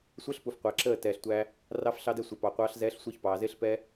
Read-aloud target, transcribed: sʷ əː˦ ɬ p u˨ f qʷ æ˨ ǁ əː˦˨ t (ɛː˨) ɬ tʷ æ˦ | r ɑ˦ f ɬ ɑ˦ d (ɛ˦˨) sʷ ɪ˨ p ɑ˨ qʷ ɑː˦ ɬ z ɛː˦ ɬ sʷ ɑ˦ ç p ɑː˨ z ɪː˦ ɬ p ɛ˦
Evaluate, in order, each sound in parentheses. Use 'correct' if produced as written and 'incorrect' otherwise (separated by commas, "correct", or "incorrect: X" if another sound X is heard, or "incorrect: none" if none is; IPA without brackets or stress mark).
correct, incorrect: ɛ˦